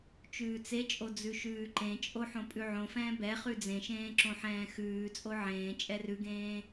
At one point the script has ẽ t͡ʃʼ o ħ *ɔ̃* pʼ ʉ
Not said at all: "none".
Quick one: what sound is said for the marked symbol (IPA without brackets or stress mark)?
õ